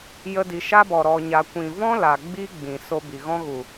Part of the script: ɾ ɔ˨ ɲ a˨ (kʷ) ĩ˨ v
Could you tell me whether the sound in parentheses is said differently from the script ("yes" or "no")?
no